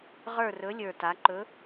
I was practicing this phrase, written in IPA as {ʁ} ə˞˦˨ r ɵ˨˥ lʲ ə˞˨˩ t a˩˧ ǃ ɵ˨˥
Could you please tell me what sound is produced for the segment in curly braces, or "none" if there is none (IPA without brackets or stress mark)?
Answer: ʁ